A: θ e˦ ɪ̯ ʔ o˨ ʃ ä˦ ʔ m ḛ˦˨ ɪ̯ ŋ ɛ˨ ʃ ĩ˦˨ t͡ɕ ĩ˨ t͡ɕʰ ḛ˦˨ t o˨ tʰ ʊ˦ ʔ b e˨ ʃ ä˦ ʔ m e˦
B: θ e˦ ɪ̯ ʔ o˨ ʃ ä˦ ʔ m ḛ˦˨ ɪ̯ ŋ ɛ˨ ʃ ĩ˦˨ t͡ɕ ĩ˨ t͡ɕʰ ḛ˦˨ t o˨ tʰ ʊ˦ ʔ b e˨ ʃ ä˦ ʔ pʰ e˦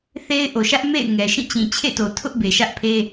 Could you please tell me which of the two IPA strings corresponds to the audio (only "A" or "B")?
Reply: B